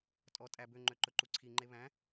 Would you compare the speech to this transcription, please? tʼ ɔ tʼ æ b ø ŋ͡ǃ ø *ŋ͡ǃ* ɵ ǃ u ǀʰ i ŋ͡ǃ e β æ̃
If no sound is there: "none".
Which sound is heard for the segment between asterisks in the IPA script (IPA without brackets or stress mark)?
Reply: ǃ